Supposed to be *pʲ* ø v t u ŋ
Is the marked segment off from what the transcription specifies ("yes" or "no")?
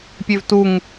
no